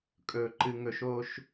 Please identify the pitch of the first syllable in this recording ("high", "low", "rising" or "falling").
falling